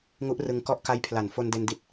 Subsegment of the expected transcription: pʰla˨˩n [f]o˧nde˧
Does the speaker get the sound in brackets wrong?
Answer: no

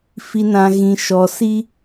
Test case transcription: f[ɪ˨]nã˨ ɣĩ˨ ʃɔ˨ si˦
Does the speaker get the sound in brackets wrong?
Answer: yes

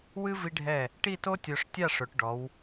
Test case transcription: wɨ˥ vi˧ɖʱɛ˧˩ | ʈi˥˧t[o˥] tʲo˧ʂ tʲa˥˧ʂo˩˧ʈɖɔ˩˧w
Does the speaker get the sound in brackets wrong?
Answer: no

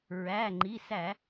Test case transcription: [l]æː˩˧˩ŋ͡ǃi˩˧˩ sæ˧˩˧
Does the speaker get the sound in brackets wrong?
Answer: yes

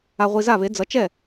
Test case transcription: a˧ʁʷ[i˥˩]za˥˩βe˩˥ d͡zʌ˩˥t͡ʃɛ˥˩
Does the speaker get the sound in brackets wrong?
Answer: yes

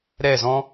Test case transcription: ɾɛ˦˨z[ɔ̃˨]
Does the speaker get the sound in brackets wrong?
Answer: yes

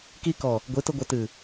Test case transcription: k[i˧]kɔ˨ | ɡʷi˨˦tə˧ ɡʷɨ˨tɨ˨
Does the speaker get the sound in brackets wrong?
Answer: no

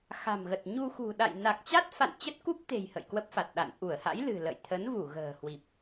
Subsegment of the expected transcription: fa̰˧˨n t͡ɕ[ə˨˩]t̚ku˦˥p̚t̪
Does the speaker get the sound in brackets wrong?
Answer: yes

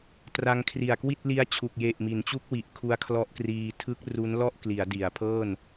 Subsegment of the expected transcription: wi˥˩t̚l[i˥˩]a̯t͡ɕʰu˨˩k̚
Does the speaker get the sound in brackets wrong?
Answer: yes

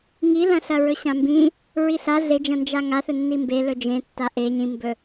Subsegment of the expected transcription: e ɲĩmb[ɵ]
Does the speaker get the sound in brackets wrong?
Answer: no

